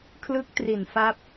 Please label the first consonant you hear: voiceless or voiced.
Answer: voiceless